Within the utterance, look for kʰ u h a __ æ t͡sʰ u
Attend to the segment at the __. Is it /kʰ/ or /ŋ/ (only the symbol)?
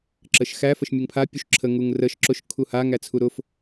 ŋ